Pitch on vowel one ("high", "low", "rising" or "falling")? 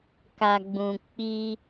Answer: low